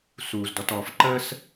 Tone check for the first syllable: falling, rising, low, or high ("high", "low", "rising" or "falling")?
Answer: low